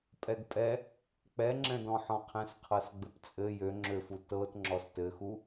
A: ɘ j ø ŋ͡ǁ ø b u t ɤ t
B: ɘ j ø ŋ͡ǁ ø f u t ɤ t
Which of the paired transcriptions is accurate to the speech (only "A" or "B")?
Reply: B